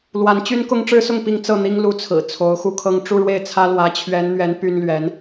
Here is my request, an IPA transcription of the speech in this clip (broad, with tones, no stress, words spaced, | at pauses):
lwa˧˥nt͡ɕy˥n kʊ˥ŋʈ͡ʂɻ̩˥sʊ˥˩ŋ pi˥ŋ t͡sɤ˥˩n̪i˥ŋ lu˧˥t͡sʰɹ̩˨˩ t͡sʰo˧˥ʊ̯xu˥˧kʰɤ˥˧ŋ ʈ͡ʂu˥˧ɻwe˥˩ɪ̯t͡sʰä˥ lwä˧˥t͡ɕʰɥɛ˧˥nn̪ɥɛ˧˥n py˥nlɥɛ˧˥n